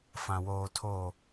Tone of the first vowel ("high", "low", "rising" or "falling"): low